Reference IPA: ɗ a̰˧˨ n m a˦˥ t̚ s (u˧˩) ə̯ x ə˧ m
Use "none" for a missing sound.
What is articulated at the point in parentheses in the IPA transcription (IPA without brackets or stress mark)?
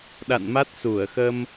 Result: u˧˩